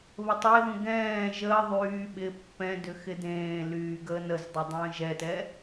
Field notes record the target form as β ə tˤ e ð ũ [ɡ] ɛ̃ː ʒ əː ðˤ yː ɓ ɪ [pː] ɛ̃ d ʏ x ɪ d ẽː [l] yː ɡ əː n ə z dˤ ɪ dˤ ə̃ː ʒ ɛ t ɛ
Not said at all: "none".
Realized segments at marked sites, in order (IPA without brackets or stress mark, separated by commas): ɡ, pː, l